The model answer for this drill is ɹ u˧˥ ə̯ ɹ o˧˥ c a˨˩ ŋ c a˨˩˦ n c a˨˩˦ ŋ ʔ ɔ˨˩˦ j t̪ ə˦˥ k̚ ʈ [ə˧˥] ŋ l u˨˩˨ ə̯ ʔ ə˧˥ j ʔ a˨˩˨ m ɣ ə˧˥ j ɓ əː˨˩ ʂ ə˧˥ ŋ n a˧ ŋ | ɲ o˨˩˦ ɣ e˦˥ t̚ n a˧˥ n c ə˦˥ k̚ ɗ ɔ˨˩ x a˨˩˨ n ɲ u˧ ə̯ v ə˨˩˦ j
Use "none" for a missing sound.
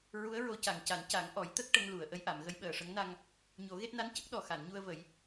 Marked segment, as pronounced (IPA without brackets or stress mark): ə˧˥